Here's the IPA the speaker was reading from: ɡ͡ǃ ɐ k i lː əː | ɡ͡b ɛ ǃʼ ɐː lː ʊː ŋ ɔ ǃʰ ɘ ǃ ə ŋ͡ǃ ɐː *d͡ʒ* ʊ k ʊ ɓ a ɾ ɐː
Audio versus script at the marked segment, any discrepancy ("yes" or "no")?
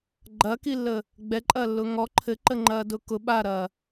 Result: yes